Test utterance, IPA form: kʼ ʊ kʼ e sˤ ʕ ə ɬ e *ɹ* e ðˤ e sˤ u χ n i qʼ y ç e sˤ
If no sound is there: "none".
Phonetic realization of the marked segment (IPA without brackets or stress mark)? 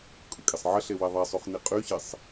w